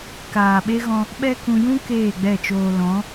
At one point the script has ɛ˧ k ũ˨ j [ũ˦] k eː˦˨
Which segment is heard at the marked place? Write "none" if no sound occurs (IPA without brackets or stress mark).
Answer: ũ˦